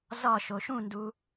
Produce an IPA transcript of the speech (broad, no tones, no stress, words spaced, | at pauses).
zɒʃ oʃũndu